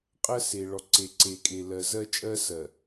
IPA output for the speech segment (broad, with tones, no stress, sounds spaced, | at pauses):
qʼ ɜ˦ s e˨ ɭ ɔ˨ ǀ e˨ ǀ e˨ kʼ e˨ l ɜ˨ z ɜ˦ t͡ʃʼ ɜ˦ s ɜ˨